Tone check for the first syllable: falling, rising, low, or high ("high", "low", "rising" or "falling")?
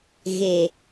low